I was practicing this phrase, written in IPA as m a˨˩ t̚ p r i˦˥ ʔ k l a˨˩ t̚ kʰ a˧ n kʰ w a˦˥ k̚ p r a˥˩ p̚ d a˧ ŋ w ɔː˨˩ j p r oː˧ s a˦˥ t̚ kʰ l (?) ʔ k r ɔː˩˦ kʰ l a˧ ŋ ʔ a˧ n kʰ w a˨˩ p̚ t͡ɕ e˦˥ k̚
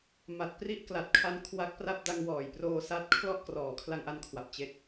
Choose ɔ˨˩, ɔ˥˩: ɔ˥˩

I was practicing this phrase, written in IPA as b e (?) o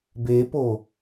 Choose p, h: p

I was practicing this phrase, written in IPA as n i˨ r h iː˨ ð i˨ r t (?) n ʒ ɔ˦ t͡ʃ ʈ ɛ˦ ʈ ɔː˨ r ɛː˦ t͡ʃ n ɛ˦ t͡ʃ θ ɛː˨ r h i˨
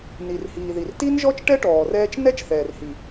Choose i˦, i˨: i˦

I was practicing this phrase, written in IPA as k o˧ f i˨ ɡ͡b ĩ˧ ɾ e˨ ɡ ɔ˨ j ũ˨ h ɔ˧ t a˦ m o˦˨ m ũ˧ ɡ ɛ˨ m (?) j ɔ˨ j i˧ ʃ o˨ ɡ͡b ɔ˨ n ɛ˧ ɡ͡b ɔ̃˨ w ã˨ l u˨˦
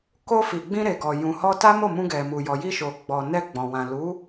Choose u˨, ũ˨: u˨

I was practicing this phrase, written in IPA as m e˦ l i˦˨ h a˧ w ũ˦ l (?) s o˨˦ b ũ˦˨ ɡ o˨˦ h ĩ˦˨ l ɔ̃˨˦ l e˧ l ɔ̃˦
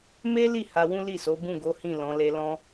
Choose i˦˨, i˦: i˦˨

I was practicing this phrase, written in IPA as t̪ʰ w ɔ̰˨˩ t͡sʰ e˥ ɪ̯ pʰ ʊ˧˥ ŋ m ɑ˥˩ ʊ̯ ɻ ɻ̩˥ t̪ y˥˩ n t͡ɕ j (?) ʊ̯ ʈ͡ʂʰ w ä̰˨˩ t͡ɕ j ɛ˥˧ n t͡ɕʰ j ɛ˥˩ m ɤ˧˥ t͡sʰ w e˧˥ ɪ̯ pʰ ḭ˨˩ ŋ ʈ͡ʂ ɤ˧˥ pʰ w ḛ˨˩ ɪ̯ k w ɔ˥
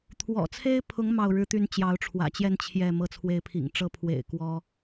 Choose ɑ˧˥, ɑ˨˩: ɑ˧˥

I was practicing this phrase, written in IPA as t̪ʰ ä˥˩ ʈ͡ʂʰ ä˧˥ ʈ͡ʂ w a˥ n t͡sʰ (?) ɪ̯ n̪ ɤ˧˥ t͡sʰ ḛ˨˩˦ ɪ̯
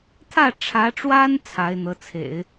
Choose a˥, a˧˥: a˧˥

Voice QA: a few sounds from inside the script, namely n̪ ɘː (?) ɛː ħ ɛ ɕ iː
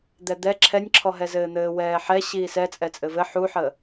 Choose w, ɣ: w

